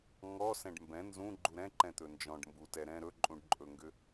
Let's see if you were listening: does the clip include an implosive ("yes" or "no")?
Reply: no